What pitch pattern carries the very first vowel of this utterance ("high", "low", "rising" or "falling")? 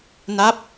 falling